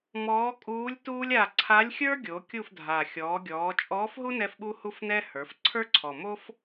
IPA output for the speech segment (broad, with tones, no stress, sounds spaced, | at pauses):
m ɔː˧˥ kʼ uː˧˥ lʲ t uː˥ lʲ a˦˨ ǀʰ a˧˥ lʲ xʲ ə˞˥ ɡʲ o˩˧ kʲ u˦˨ f dʱ a˨˩ xʲ ɔː˩˧ ɡʲ ɔː˩˧ t͡ʃʼ ɔː˧˥ f ɦ u˥ n ɛ˥ f ɓ u˥ h u˥ f n ɛ˥ h ə˞˩˧ f ǀʰ ə˞˥ ǀʰ ɔ˨˩ m o˥ f